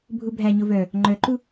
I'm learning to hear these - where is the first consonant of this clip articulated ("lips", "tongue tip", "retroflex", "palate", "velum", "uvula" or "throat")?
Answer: lips